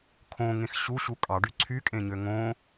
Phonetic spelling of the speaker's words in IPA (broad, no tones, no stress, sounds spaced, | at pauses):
kʰ õ ŋ ẽ x ɕ u ɕ u kʼ ɑ ɖ y ǀʰ y kʼ ẽ ɲ ø ŋ õ